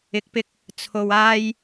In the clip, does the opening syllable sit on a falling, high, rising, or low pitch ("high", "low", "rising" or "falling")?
rising